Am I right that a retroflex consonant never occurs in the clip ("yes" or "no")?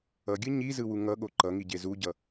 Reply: yes